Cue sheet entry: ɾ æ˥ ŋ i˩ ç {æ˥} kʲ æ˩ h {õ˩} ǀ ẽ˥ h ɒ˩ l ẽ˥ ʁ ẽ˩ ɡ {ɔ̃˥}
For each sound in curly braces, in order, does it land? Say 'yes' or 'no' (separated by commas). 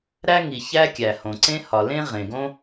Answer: yes, yes, no